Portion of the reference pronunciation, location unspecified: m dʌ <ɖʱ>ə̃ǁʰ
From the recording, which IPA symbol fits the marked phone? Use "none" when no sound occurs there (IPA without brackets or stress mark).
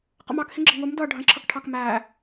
ɖʱ